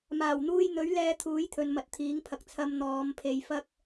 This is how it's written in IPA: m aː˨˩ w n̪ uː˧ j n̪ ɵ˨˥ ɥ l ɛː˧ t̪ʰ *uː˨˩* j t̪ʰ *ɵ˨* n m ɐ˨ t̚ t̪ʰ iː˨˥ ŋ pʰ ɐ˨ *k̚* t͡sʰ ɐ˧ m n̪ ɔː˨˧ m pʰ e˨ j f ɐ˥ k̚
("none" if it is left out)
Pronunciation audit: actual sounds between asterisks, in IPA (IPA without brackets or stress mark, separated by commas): uː˨˥, ɵ˨, k̚